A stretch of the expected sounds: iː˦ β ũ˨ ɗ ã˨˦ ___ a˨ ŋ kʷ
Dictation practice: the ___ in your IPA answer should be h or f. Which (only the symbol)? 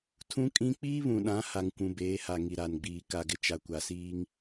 h